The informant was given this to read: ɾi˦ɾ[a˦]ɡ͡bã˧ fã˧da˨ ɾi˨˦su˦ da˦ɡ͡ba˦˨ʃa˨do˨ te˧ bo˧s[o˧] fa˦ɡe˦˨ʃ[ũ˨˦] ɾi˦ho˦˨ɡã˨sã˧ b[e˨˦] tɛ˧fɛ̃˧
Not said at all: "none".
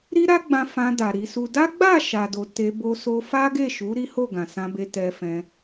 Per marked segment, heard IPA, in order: a˦, o˧, u˨˦, e˧

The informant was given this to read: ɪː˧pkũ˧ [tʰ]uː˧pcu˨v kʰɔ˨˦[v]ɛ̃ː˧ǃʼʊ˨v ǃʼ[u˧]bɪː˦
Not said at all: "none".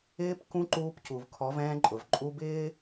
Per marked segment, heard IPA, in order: ǃ, v, u˧

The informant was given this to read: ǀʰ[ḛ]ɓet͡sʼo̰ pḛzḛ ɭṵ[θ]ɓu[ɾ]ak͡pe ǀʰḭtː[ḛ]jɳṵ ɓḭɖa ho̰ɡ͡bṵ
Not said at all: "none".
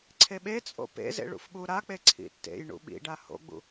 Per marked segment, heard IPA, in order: e, f, ɾ, ḛ

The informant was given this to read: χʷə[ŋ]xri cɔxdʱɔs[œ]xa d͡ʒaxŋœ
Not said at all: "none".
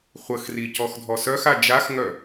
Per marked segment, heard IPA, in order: none, œ

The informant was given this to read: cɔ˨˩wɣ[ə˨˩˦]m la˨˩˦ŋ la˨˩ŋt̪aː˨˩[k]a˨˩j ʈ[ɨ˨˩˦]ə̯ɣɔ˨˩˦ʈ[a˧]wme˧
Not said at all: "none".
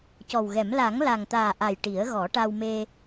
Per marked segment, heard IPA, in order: ɛ˨˩˦, ʔ, i˨˩˦, a˧

